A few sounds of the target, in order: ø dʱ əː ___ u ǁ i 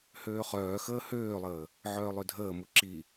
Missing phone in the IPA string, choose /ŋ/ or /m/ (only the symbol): m